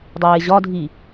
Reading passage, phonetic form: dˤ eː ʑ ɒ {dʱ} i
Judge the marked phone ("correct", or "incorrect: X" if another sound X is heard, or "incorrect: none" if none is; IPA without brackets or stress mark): correct